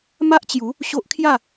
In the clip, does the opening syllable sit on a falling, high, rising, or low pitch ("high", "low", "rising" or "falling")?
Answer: high